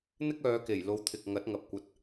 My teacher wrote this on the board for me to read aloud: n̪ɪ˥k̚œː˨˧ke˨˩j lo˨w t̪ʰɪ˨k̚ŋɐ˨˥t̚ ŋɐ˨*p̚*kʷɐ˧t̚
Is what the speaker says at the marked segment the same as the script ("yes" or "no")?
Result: yes